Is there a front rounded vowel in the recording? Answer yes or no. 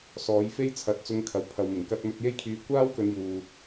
yes